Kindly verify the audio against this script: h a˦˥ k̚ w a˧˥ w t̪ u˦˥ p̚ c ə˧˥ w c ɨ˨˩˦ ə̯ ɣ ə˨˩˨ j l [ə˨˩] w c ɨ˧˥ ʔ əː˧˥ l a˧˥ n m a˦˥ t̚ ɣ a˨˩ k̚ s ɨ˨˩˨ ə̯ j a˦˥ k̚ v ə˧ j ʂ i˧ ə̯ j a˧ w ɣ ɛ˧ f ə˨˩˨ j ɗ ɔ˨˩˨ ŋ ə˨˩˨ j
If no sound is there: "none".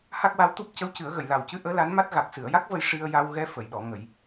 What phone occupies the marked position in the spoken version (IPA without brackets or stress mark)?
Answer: a˨˩